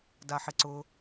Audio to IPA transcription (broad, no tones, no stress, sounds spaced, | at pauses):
d a ħ ɪ ǀ ʊ